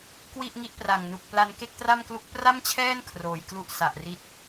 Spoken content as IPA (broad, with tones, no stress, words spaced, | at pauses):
kwi˥˩ʔŋi˦˥ʔpra˨˩ŋnu˨˩k̚ pla˧n ke˥˩k̚tra˥˩mklu˦˥k̚ pra˥˩mt͡ɕʰɛː˥˩n kʰroː˨˩jklu˥˩ʔ sa˨˩ʔri˦˥t̚